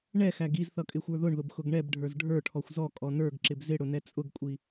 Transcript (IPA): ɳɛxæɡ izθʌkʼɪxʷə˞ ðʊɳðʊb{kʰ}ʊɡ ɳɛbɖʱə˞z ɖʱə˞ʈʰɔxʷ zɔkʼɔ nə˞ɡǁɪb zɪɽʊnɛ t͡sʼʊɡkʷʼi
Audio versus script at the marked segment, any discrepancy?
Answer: yes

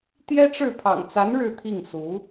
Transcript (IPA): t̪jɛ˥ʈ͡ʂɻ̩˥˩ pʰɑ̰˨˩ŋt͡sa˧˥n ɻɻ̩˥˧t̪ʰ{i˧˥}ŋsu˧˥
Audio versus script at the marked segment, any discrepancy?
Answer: yes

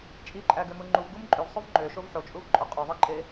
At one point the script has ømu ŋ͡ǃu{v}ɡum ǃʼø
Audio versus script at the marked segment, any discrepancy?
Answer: no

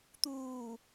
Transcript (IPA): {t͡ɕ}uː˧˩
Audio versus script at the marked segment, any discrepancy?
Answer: yes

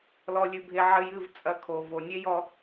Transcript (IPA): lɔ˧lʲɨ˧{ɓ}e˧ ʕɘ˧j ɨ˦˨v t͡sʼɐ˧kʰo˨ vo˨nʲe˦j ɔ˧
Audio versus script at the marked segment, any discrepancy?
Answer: yes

